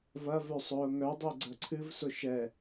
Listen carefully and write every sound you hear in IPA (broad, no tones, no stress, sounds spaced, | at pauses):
v ɐ v œ sˤ ʊː ŋ œ dˤ e ɡ͡ǀ ɐ ǀʰ ɨ v s ʊ ʃ ɛ